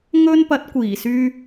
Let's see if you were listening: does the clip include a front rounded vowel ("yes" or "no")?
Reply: yes